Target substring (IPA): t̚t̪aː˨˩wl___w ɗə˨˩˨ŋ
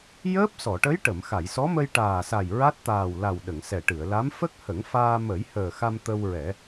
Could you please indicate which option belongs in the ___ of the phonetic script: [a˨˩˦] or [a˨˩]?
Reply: a˨˩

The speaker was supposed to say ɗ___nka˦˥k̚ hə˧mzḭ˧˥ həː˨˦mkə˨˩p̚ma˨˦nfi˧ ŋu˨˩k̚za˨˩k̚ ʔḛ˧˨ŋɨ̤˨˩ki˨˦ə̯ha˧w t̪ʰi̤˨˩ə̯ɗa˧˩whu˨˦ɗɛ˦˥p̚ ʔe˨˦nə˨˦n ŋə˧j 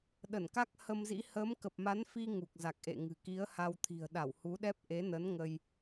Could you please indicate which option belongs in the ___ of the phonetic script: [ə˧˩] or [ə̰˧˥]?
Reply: ə˧˩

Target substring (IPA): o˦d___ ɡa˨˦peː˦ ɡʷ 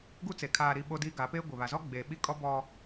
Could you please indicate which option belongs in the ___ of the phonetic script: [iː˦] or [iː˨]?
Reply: iː˦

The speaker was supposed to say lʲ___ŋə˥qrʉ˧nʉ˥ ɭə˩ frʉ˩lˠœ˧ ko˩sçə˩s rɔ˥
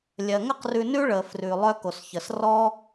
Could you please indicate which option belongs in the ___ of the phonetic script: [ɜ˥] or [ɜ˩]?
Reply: ɜ˩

